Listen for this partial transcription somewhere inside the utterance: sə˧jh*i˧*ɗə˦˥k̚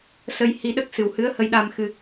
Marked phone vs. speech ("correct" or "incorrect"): correct